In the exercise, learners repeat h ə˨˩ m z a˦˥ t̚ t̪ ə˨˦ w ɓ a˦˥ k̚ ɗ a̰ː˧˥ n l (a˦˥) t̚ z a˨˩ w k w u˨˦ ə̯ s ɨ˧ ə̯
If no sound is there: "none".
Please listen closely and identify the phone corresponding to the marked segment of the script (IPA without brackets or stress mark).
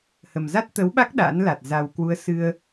a˨˩